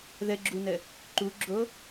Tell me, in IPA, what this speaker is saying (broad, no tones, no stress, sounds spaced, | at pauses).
ð ə ɡ͡ǁ u n ə | ǃ u ɡ͡ǁ o